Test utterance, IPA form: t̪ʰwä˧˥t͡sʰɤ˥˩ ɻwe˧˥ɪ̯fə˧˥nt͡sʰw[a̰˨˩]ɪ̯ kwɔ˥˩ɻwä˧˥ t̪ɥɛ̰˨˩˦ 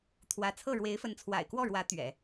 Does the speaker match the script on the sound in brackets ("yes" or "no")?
yes